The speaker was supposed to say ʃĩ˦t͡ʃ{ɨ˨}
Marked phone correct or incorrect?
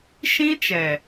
incorrect